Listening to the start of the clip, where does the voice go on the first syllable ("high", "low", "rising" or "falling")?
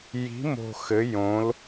rising